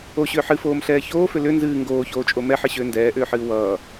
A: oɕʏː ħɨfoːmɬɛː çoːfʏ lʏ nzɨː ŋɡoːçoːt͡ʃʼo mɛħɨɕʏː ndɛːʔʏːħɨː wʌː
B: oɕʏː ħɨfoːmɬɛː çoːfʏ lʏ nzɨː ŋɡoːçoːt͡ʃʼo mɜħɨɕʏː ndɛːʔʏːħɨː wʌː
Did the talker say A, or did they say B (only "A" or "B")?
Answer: A